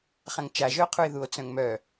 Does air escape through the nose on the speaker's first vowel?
yes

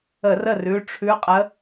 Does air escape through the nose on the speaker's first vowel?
no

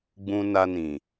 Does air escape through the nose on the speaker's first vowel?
yes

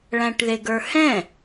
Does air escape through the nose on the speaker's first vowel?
yes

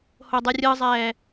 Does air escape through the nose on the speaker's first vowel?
no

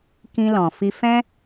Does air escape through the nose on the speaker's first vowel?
yes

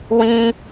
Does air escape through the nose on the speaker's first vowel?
yes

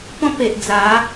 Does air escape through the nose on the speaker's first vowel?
yes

